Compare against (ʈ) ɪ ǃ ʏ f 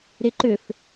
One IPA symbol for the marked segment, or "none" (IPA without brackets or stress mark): ɾ